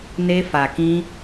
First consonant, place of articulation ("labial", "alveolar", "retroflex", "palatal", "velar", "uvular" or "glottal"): alveolar